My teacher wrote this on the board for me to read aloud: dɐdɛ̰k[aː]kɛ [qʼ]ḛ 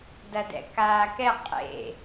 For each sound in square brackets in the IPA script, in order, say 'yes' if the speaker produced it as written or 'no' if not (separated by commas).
yes, yes